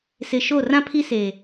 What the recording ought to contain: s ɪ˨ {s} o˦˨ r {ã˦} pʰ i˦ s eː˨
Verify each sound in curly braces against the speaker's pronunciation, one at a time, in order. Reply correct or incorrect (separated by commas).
incorrect, correct